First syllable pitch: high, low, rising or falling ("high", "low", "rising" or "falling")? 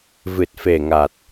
low